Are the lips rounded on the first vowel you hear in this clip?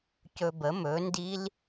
yes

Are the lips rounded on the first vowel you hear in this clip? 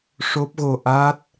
yes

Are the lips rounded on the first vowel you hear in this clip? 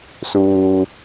yes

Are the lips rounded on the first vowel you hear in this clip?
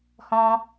yes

